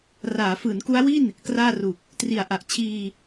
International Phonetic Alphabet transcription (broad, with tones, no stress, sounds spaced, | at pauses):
r aː˩˦ f ɯː˩˦ n k u˦˥ a̯ w i˥˩ n | k r aː˥˩ r u˨˩ k̚ | t r i˨˩ a̯ ʔ a˨˩ ʔ t͡ɕʰ iː˧